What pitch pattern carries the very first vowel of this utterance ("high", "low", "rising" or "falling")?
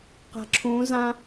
low